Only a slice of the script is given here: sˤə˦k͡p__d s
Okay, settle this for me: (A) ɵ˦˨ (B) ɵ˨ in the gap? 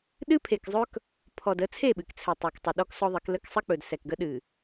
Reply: B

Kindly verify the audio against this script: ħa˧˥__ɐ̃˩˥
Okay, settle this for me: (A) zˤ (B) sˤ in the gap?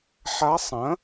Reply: B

